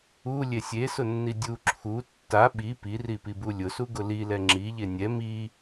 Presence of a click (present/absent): present